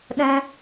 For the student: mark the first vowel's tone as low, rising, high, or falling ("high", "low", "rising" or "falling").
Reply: high